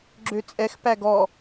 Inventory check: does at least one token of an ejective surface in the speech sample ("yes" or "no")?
yes